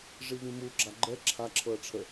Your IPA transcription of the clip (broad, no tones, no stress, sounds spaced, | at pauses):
ʐ i v ĩ m u ɡ͡ǁ a ɡ͡ǃ ɛ ǁʰ a ǁʰ ɤ ɐ̯ ʈ͡ʂʰ ə